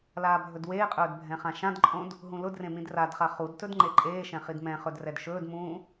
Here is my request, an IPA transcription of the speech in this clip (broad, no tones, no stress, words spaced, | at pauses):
laːbʱɵdweːqʼɵːd bʱɛ̃χãʃãdǃʼõd | ɦũlʊdrẽ mĩdradχa χudtɵd ŋ͡ǃeǃʼeːʃɛ̃ χidmɛ̃χɵd rɛdʃɵːdmũː